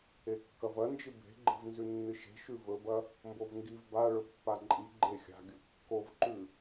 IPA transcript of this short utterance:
e kː ɐ v ɐ n d͡ʒ ɨ b e̤ ɡ͡ǃ e̤ v n z ʉ nː ɨ ʃ e̤ ʃ ʉ v ɵ b ɐ | m b o v ŋ ɡ i v b a ɭ ɵ pː a ǃʼ i ɡ͡ǃ e xʲ a̤ ɡʲ ɵ kː o v ǃ ʉ

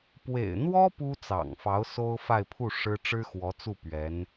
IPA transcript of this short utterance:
p w ḛ˨˩ ɪ̯ n̪ w ɔ˥ p u˥ t͡s ɑ̰˨˩ ŋ f ɑ˧˥ ʊ̯ s o˥ ʊ̯ f a˥˧ ɪ̯ pʰ u˥˩ ʂ ɻ̩˥ ʈ͡ʂ ɻ̩˥ x w ɔ˧˥ t͡s u˥˩ p ɥ ɛ˧˥ n

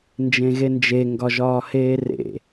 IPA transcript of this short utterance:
n d͡ʒ ẽ ɣ e n d͡ʒ e ŋ ɡ ɒ ʒ ɒː h eː r ḛ

